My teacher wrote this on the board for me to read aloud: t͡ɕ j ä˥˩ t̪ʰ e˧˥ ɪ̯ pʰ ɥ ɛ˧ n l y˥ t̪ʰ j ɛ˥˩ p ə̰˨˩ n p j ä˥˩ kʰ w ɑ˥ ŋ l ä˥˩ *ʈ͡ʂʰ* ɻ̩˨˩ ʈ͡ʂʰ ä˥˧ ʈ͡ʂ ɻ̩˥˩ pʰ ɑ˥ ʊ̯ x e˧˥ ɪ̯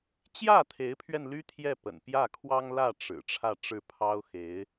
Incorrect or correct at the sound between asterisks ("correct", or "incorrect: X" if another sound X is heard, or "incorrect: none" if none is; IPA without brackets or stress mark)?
incorrect: ʈ͡ʂ